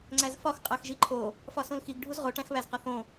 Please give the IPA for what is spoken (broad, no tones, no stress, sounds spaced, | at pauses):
ŋ͡ǀ æ z f ɒ x qʼ æ x ʒ i ǃʰ o | f ɒ s õ l x i ɡ ɖʱ u z ʁ o ʈ æ̃ x β æ z q ɒ θ õ